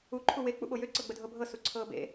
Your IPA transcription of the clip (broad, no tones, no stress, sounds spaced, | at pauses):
u ǃʰ u w e k͡p ṵ ɓ o j ø ǀ ɤ ɡ͡b ə dʱ ɤ bʱ ɤ s u ǀʰ ɤː b ḛ